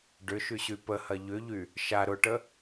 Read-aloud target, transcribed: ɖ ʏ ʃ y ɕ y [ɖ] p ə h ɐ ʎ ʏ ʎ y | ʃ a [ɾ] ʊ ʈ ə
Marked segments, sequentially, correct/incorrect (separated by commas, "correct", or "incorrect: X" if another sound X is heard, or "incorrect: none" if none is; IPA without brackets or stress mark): incorrect: none, correct